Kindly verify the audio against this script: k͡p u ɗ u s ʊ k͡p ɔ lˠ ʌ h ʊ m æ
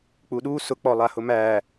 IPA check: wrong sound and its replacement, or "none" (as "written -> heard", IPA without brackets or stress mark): ʌ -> a